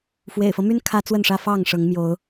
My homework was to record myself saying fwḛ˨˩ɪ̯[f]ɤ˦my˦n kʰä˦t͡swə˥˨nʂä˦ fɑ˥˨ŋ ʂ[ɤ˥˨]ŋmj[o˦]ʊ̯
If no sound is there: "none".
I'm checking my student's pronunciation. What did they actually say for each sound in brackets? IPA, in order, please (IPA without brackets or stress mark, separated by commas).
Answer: f, ɤ˨˦, o˨˦